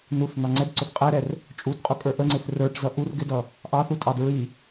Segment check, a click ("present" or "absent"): present